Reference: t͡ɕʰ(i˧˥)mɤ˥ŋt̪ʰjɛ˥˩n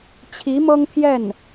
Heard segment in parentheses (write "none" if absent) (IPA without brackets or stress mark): i˧˥